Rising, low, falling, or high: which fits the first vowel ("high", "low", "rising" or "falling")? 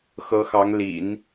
rising